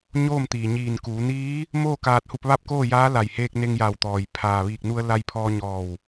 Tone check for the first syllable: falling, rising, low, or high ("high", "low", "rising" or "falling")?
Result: falling